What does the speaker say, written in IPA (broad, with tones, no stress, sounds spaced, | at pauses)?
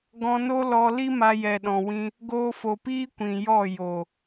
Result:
ɡ ɔ̃˧ n o˦ l ɔ˧ l i˦ m a˧ j ɛ˨ ɗ ɔ̃˨ w ĩ˧ | ɡ oː˧ f o˨ p iː˦ kʷ ĩ˨ j ɔ˦˨ j o˨